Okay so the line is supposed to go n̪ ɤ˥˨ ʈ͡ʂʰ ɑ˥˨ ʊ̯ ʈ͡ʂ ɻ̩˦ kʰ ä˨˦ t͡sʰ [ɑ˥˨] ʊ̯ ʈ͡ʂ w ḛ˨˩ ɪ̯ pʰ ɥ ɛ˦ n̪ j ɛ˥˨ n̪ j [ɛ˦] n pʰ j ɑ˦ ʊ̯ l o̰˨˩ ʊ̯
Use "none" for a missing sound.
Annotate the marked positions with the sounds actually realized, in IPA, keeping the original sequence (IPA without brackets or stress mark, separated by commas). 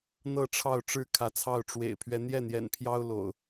ɑ˥˨, ɛ̰˨˩